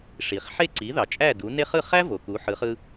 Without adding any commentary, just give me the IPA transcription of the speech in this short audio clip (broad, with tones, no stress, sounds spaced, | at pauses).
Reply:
ʂ i˩ χ ħ e˥˩ ǀ i˩˥ ð ɑ˩ t͡ʃʼ æ˥˩ d u˩˥ n e˥ χ ɯ˥˩ χ æ˥ v o˩ k u˩˥ ħ ɯ˩˥ χ ɯ˧